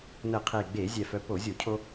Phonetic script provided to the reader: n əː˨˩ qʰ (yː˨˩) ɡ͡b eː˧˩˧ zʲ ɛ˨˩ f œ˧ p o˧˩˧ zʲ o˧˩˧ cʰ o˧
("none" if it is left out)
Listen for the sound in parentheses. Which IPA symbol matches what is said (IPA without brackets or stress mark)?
eː˨˩